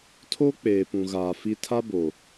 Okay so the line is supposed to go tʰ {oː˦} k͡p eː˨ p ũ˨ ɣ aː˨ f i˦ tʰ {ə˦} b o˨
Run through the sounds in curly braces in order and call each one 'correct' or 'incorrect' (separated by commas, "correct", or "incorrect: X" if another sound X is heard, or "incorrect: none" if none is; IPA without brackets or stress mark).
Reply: incorrect: o˦, incorrect: a˦